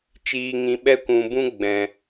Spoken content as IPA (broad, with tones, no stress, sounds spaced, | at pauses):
t͡ʃ iː˨ ŋ ĩ˨ ɓ ɛ˧ kʷ ũ˨ b ũ˦ ɡ͡b ɛ̃˨